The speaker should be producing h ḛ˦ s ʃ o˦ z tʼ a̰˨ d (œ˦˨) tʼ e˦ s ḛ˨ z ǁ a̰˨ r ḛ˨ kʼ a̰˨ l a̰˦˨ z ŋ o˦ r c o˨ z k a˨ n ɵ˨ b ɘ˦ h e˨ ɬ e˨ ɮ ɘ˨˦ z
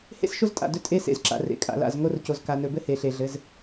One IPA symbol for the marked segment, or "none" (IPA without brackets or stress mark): ɵ˦˨